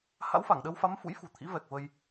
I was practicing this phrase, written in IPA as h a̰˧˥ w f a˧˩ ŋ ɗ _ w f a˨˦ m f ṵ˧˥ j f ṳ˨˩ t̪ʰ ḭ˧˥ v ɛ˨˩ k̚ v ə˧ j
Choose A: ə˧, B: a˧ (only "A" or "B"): A